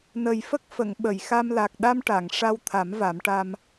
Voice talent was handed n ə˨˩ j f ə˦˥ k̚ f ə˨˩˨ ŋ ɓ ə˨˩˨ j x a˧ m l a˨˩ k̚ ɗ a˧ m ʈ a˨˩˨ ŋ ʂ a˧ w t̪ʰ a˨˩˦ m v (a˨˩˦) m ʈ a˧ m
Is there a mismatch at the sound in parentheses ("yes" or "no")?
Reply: no